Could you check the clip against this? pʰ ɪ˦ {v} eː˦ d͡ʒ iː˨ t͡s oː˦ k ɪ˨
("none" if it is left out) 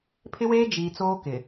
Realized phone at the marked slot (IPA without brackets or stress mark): w